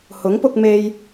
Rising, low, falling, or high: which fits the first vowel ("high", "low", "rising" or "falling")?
rising